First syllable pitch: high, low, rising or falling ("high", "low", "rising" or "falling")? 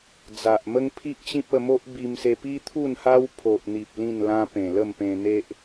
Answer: low